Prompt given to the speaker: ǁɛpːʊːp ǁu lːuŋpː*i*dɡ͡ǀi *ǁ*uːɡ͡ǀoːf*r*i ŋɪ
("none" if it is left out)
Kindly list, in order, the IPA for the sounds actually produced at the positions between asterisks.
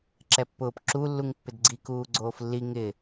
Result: ɪ, k, lː

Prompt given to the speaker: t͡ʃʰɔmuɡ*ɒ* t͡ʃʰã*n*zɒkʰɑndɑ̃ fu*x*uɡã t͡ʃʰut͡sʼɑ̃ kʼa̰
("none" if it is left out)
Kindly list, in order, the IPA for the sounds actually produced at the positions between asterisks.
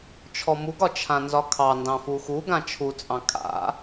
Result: ɒ, n, x

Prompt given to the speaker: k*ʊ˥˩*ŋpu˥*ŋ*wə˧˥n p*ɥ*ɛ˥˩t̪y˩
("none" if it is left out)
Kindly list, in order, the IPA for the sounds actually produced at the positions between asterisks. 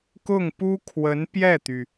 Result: ʊ˥˩, kʰ, j

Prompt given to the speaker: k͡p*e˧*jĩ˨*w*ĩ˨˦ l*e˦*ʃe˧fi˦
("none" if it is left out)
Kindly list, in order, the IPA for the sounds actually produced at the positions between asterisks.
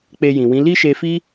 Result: e˧, w, i˦

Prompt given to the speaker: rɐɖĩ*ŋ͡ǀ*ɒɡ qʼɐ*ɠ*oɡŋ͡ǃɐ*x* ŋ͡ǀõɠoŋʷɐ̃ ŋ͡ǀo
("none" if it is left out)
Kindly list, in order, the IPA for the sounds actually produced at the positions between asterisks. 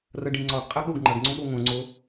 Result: ŋ͡ǀ, ɠ, ɡ

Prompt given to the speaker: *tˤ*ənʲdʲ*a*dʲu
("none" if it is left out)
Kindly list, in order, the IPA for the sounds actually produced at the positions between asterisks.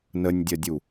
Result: n, ɐ

